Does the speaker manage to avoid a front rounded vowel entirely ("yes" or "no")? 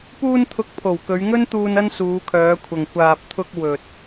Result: no